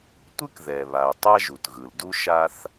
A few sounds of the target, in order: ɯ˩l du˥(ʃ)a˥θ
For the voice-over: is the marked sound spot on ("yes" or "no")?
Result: yes